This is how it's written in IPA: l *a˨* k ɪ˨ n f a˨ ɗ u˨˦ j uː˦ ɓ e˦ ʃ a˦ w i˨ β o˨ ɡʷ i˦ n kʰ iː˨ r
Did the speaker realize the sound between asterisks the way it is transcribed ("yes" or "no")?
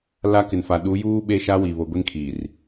no